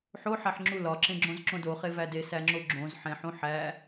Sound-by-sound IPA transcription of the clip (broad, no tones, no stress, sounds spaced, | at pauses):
ħ o ħ æ ħ ŋ͡ǁ u l ɒ ǁ ẽ ɡ͡ǁ õ z ǁ õ d o χ e v æ d e s æ ŋ͡ǁ o ɡ͡ǁ õ z ħ ẽ ħ ũ ħ æ